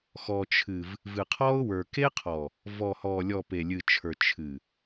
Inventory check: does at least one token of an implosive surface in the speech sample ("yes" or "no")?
no